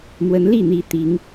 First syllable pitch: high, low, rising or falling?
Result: rising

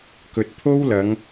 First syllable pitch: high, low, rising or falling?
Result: low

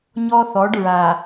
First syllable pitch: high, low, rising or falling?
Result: high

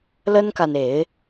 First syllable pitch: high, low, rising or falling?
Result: high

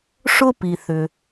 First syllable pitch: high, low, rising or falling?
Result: high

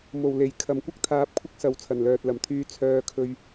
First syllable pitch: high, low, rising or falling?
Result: low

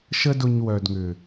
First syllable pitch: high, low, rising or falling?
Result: high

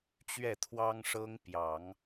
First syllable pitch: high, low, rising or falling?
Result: falling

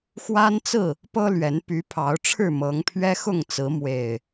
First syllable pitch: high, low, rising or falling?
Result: high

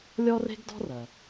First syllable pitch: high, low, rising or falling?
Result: high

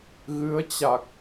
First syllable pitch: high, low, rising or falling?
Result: rising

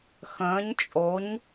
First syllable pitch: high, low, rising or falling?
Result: rising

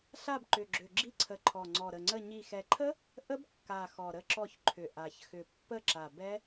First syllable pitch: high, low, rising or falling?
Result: falling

